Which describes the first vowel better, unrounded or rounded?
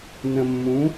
unrounded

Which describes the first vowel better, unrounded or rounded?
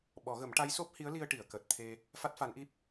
rounded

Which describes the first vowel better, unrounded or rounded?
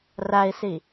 unrounded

